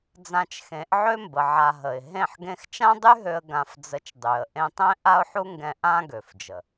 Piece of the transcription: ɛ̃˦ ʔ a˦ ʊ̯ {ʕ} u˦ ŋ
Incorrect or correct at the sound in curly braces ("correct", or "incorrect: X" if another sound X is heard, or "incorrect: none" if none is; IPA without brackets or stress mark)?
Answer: incorrect: ħ